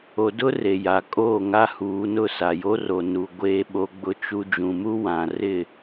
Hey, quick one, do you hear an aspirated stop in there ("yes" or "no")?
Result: no